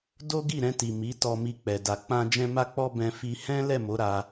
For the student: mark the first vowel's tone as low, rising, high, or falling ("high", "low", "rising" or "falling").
high